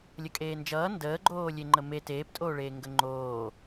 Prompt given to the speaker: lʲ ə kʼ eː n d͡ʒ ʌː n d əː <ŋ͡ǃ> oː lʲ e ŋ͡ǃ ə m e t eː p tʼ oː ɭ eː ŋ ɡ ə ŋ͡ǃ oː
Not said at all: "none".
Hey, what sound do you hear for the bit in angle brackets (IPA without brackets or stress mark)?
ɡ͡ǃ